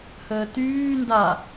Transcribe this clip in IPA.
h əː t yː n d a

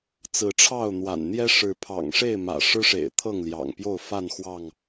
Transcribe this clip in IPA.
t͡s ɹ̩˨˦ ʈ͡ʂʰ ɑ˥˨ ʊ̯ n̪ w a̰˨˩ n n̪ j ɛ˦ ʂ ɻ̩˨˦ pʰ ɑ̰˨˩ ŋ ʂ e˥˨ ɪ̯ m ä̰˨˩ ʂ ɻ̩˦ ʂ ḛ˨˩ ɪ̯ t̪ʰ ɤ˥˨ ŋ l j ɑ̰˨˩ ŋ p j o˥˨ ʊ̯ f a˥˨ n x w ɑ˥˨ ŋ

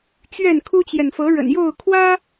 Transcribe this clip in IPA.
t͡ɕ ɥ ɛ˥˨ n kʰ u˦ t͡ɕ j ɛ˨ n f ɤ˨˦ ɻ ə̰˨˩ n j o˥˨ ʊ̯ kʰ w ä˦

